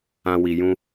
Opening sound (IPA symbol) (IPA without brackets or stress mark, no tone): ã